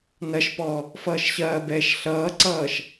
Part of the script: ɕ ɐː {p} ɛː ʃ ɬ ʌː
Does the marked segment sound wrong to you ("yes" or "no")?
yes